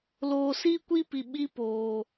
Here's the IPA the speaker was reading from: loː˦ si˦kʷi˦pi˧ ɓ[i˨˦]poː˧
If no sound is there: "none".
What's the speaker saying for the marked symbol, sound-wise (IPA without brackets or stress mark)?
i˦